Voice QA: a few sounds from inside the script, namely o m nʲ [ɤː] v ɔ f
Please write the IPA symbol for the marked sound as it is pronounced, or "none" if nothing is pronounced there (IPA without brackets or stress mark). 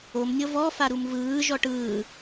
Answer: ɤ